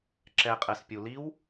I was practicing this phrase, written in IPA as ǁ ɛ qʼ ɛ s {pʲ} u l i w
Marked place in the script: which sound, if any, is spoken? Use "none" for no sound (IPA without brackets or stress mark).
pʲ